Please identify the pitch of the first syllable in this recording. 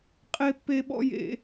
high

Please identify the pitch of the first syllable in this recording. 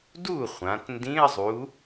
falling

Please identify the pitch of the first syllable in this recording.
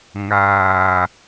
low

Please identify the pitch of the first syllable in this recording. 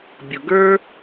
low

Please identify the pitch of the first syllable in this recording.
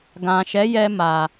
low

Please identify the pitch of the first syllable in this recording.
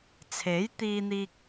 rising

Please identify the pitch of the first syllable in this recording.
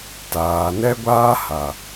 low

